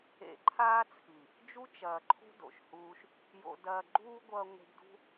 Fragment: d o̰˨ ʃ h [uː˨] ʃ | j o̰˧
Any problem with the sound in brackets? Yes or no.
yes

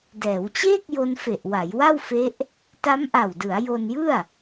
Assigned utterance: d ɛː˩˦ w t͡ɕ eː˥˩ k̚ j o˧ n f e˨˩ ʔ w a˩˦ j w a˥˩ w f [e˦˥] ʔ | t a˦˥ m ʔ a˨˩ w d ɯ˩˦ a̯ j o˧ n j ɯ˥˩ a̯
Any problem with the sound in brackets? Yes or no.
no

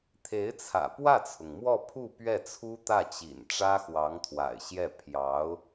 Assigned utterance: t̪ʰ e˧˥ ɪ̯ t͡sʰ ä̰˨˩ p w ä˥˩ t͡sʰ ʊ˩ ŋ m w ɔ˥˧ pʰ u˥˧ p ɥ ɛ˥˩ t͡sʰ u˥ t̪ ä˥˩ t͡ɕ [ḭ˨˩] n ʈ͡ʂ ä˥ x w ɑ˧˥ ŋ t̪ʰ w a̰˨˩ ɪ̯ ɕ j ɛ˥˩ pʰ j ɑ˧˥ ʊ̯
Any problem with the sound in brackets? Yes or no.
no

